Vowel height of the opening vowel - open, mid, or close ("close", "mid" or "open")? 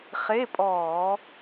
mid